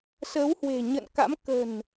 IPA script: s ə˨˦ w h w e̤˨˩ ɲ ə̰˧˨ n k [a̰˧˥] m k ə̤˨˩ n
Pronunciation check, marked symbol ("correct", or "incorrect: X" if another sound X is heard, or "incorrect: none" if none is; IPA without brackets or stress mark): correct